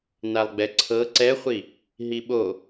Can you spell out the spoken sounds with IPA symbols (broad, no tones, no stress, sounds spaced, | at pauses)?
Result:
n a lˠ ɡ͡b ɛ ǀʰ ɤ ǀ ɛ χʷ i | ɦ i ɓ o